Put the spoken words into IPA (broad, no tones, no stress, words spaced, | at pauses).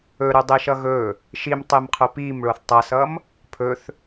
ɵɾɵdˤe ʃʌɣɵ | ʃimtˤemqʰʊ pim ɭoθtˤʌsʌm | pʰɵθ